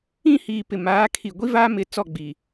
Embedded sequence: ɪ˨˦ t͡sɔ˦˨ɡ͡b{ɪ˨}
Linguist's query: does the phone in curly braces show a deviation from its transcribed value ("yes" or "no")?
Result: yes